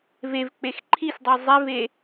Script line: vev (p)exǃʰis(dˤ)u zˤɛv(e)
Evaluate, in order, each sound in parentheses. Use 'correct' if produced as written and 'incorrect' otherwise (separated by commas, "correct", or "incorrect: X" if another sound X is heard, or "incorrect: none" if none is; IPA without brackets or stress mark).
incorrect: k͡p, correct, correct